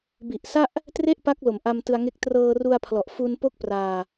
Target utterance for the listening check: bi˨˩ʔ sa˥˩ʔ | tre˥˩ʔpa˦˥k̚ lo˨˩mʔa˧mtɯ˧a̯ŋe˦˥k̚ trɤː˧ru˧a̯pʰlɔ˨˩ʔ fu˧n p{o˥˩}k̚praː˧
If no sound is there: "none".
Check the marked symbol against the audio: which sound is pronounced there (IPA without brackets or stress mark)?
o˥˩